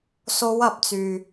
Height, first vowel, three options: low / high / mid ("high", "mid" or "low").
mid